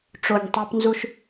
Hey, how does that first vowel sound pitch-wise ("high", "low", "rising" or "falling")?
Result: low